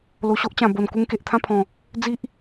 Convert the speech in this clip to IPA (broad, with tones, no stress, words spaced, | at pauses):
lo˨˩ɕo˦ʔt͡ɕã˨˩ bo˨˩n ku˧ŋke˨ʔt̪ʰã˥˧ pʰɔ̃˨˩ | d͡zi˦ʔ